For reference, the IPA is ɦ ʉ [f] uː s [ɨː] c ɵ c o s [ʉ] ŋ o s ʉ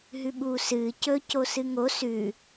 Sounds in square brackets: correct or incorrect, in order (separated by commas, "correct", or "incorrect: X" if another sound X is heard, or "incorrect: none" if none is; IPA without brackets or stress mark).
incorrect: ɓ, correct, incorrect: ɨ